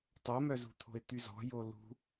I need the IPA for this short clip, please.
tˤ o m œ z ṳ t̪ʰ o̤ ɪ̯ t̪ y z ɔ̤ j o l ṳ

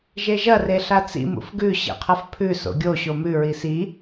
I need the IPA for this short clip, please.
ʒ e ʒ ɐ r e ɬ a t͡s ḭ m ṵ f ɡ ʉ ɕ ḛ qʰ ɐ f pʰ ʉ s o̰ ɡʲ o ɕ o m ʉ ɹ i s i

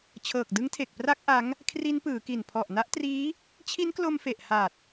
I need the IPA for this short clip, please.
t͡ɕʰ ɤː˨˩ k̚ d ɯ˦˥ ŋ tʰ e˨˩ k̚ p r a˦˥ k̚ ʔ a˦˥ ŋ | kʰ r i˦˥ n p ɯː˩˦ k i˨˩ n pʰ ɔ˨˩ ʔ n a˦˥ ʔ t r iː˦˥ | t͡ɕʰ i˦˥ n k l o˧ m f e˨˩ ʔ h a˨˩ t̚

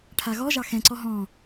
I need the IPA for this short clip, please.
ʈʰ a ɣ ɔ ʒ ɑ x ɛ̃ ǀ ɔ ɦ ɔ̃

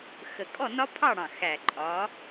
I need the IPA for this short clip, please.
x ə˨˩ kʼ ɔ˥˨ n ɒ˦˥ pʰ ɑ˥˨ ɽ ɑ̃˨˩ x æ˨˩ ǃʼ ɒ˨˦

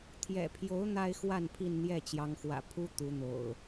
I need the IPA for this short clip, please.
t̪ʰ j ɛ̰˨˩ pʰ j o˨˦ ʊ̯ n̪ a˦ ɪ̯ x w a˥˨ n pʰ i˥˨ n n̪ j ɛ˥˨ t͡ɕ j ɑ˨˦ ŋ x w ä̰˨˩ pʰ u˦ t̪ u˨˦ n̪ o̰˨˩ ʊ̯

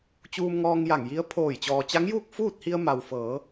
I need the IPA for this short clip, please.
t͡ɕ uː˧ m ŋ ɔː˧ ŋ j a˧˩ ŋ j i˧˥ ə̯ pʰ oː˧˩ j t͡ɕ ɔː˩ t͡ɕ a˧˥ ŋ j uː˥˨ k̚ f uː˥˨ t̚ h i˧ ə̯ m a˩ w f ɤː˩˧

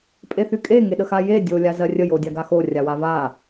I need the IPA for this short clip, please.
pʼ e θ y kʼ e ŋ e ɗ ə x a j e dʲ o lʲ a z ɜ rʲ ə j o dʲ a ɡ a x o rʲ a w a v a

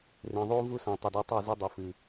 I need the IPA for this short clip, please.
r ẽ˨ ðˤ u˦ v u˦ s ã˨ tˤ ɵ˨ d o˦ tˤ o˦˨ z e˦ dˤ ɵ˨ f ɨ˨

